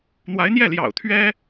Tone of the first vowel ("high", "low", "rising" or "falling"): rising